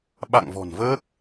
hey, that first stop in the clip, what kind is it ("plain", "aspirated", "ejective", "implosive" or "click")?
implosive